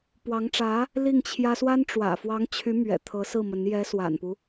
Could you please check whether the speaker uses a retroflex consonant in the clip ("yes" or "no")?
yes